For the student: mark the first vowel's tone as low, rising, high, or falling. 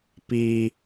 high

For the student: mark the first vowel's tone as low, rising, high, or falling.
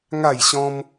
falling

